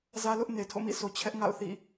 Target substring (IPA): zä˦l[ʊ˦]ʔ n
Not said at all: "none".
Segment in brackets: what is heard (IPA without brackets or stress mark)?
ʊ˦